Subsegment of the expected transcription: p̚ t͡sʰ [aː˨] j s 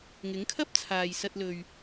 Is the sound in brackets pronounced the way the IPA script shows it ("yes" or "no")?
yes